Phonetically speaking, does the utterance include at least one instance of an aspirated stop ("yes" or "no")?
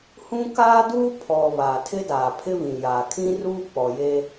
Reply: yes